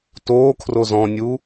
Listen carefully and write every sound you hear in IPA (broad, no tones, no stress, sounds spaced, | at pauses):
t oː kʰ r o z ɔ̃ nʲ u